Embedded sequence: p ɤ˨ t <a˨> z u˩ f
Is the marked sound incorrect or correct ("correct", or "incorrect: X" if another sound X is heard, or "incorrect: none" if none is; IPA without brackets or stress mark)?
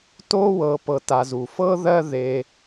correct